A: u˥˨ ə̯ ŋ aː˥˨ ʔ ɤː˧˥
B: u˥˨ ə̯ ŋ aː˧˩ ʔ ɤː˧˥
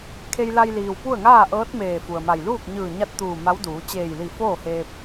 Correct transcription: A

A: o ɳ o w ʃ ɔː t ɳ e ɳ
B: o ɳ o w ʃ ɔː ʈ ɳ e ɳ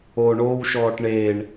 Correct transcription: B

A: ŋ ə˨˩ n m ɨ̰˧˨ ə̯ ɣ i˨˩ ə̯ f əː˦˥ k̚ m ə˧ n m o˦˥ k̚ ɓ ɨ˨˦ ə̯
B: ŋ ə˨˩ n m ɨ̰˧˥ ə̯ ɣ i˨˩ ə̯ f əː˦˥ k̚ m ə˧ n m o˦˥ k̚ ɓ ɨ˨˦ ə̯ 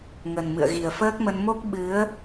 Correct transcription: A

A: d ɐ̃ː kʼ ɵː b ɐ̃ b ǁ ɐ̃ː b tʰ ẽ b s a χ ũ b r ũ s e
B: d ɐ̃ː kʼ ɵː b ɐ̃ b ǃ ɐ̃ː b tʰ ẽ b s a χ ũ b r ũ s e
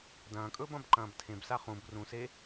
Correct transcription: B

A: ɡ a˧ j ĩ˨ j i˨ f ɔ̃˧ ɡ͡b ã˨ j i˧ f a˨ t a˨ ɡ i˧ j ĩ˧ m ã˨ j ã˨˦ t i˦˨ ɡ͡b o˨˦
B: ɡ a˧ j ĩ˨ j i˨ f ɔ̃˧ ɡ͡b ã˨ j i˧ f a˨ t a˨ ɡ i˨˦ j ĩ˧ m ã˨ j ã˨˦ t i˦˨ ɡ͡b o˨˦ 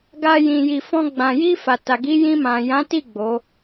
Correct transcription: B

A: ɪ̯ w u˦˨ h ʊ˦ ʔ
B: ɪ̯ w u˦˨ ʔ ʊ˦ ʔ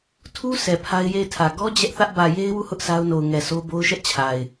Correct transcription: A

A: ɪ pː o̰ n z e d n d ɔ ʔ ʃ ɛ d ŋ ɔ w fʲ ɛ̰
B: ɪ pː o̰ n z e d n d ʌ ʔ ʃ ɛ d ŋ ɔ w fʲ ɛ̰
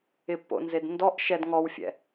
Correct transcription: A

